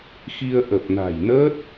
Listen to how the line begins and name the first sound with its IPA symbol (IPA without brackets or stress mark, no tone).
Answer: x